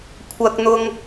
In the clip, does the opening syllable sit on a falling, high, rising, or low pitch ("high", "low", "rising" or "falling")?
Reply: high